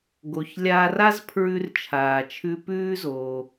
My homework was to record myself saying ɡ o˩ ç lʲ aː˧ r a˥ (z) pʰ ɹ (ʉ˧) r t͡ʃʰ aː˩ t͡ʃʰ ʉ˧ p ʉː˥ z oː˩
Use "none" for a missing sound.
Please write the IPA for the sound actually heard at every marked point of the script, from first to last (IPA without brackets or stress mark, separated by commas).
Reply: z, ʉ˧